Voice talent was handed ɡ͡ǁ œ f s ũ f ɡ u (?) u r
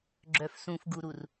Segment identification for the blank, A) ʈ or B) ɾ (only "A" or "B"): B